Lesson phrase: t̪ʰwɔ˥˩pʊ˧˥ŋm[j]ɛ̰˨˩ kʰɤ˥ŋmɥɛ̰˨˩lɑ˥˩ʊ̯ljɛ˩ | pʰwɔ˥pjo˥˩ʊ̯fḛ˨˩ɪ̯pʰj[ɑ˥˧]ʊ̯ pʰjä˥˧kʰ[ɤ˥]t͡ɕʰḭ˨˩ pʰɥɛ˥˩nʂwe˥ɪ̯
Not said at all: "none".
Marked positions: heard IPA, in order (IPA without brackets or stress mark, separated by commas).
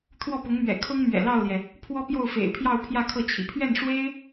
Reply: ɥ, ɑ˥˧, ɤ˥˩